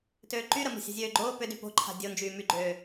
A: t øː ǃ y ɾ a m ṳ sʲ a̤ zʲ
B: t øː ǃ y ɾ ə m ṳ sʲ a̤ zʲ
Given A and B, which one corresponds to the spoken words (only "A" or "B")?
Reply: B